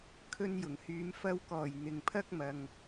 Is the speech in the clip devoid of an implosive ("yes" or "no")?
yes